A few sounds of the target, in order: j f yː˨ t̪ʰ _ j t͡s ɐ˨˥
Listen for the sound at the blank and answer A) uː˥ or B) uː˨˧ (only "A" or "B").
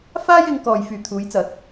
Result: B